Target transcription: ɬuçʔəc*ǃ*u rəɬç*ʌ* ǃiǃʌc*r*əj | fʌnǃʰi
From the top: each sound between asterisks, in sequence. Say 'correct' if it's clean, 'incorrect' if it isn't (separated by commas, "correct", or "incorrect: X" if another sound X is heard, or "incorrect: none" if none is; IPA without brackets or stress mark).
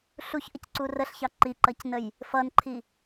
incorrect: ǀ, incorrect: ɑ, incorrect: n